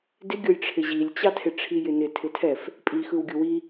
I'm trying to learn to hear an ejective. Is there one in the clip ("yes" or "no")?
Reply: yes